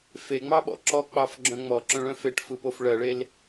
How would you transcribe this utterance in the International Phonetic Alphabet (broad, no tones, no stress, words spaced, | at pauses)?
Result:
feŋ͡mɑɓɔ̰ ǁɔk͡pɑfɡ͡ǁœ̃ ŋ͡mɔǁœ̃ɭœ̃ feʈfɯpof ɭɜɭel